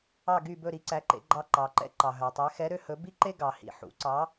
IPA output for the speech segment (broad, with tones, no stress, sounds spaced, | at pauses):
ɑ˥˩ ɡ y˥˩ b ɵ˥˩ ɾ i˩˥ ǀ æ˩˥ ǃ ḛ˧ ɡ͡ǃ ɑ˧ ǃ ɑ˩ ǃ ɛ̰˥ ǃ ɑ˩ ɦ œ˩ tˤ ɛ˩˥ x ɛ˩˥ ɾ ø˧ h ɵ˩˥ b i˥ ǃ e˥ ɡ ɑ˩ h ḭ˩ ħ ṵ˩˥ ǀ ɑ˩˥